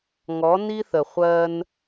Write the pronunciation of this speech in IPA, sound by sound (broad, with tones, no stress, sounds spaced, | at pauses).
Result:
ŋ ɔ˨˦ n i˦ θ ə˨ χʷ ɜ˦ n